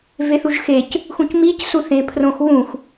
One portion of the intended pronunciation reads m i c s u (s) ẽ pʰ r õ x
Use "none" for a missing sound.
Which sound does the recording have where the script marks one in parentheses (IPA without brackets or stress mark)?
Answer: θ